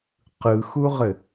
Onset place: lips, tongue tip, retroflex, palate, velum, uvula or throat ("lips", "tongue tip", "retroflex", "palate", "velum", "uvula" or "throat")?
uvula